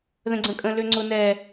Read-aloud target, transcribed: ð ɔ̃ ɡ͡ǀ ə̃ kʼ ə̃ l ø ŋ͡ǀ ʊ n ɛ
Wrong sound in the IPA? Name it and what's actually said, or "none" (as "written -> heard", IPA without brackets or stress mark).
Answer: ɔ̃ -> ə̃